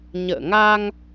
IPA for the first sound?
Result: ɲ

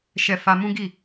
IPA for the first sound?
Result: ʃ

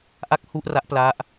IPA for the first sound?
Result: ʔ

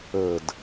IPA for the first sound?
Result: ə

